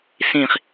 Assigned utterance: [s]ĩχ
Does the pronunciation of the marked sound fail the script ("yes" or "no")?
no